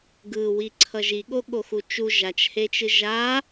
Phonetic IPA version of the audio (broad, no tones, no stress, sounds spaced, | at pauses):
ɡ ɯ w i ǀʰ ʌ ʒ i ɠ o ɠ o x u t͡ʃ u ʒ a t͡ʃ h e t͡ʃ ɯ ʒ a